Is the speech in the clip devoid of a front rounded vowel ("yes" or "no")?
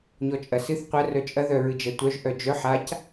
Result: no